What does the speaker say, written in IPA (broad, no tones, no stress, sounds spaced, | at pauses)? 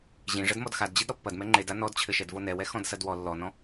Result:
ʑ ĩ ʐ ɐ d m ɔ d x a d d͡ʑ i d ɾ ɔ pː ɐ d m ɛ ŋ͡ǃ e d a n ɔ d t͡ɕʰ ɘ ʃ ɛ d v o n ɛ w ɛ x ɔ̃ d s ɐ d w ɔ lː ɔ n ɔ̃